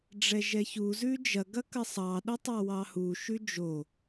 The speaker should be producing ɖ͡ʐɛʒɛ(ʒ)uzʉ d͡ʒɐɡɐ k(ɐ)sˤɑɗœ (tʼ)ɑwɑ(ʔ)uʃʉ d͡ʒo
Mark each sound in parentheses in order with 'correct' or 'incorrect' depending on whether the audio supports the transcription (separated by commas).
incorrect, correct, incorrect, incorrect